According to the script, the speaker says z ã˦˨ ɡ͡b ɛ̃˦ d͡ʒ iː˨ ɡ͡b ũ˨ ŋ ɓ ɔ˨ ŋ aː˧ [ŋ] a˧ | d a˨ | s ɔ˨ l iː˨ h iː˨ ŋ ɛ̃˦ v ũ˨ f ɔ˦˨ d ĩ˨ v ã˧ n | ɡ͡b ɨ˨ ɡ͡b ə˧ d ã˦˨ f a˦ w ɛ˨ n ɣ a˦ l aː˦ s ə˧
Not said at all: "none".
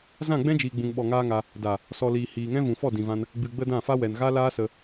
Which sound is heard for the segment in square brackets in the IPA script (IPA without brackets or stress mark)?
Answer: ŋ